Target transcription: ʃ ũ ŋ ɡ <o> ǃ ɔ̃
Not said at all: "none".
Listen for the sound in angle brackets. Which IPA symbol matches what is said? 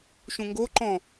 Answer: o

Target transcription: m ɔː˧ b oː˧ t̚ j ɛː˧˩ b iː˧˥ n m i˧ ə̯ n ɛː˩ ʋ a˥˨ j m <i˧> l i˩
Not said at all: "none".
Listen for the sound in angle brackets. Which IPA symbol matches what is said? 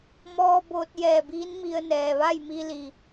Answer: i˧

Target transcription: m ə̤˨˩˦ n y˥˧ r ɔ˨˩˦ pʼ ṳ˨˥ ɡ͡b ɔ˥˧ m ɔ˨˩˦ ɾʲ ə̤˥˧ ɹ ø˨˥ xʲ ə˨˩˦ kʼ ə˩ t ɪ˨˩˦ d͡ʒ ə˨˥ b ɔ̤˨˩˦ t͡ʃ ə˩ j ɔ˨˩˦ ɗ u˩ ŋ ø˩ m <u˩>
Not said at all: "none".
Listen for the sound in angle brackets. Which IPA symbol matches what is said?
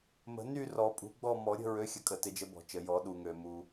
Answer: u˩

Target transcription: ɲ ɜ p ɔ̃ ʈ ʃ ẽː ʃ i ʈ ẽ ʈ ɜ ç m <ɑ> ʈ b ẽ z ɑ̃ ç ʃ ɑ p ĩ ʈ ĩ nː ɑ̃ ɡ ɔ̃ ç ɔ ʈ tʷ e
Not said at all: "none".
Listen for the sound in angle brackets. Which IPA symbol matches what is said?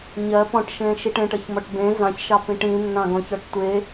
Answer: ɔ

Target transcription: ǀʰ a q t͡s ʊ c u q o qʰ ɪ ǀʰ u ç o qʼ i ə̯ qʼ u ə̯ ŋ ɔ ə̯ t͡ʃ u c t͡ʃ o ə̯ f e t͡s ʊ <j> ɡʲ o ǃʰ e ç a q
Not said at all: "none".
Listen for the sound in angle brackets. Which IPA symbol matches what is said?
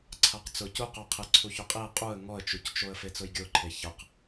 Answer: j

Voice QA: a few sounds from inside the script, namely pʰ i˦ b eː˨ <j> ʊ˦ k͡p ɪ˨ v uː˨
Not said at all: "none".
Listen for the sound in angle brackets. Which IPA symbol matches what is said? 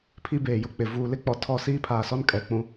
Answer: j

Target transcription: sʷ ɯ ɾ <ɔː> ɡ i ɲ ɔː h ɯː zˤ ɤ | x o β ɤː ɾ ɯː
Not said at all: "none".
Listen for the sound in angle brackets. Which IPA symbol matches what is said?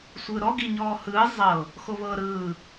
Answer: ɔ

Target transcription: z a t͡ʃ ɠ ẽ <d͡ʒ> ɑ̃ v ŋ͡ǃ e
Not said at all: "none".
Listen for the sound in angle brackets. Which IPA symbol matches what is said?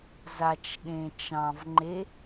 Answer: t͡ʃ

